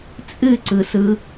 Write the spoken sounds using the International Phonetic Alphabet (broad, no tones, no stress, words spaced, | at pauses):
t͡sʼɨǀɯsɯ